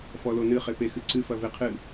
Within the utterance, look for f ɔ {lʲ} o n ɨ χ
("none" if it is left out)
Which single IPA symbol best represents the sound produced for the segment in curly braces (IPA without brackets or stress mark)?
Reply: l